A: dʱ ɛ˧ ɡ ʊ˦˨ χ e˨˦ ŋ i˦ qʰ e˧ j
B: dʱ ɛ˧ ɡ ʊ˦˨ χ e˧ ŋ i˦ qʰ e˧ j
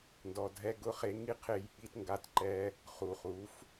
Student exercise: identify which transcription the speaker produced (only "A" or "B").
B